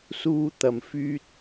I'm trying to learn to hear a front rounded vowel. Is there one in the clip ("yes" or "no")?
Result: yes